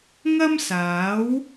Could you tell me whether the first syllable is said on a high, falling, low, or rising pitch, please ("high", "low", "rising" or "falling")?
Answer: high